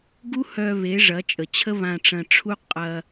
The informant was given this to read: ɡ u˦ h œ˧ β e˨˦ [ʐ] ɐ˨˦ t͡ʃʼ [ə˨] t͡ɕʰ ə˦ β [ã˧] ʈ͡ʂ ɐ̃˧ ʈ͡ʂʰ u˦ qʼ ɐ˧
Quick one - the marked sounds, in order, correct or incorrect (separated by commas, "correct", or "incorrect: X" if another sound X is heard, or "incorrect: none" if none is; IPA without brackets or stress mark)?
correct, correct, correct